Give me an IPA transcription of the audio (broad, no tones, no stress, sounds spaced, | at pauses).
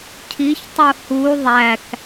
cʰ i ç tˤ u h u ðˤ æ k